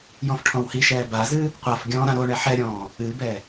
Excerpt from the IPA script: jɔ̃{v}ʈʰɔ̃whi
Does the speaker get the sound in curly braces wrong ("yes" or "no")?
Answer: yes